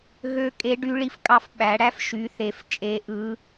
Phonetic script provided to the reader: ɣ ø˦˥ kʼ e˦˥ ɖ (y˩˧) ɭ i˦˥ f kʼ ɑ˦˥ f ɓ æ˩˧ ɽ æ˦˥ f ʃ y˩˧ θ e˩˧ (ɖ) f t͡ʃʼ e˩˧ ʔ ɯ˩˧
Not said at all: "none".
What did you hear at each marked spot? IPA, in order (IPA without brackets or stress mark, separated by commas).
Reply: y˦˥, none